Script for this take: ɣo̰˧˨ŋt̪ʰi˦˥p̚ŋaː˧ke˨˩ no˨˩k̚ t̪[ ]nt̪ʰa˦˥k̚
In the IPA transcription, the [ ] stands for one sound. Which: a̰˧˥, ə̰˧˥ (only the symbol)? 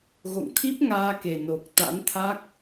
a̰˧˥